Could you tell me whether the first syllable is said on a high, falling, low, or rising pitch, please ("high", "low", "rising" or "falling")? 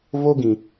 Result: high